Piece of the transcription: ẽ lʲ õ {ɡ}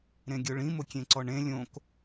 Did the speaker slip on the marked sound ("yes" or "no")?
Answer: yes